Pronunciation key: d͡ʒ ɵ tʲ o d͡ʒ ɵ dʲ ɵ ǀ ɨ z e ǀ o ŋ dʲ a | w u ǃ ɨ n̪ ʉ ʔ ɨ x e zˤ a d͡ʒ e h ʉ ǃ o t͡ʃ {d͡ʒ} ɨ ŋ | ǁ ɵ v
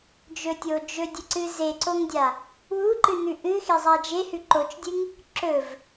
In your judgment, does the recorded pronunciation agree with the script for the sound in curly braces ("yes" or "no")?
no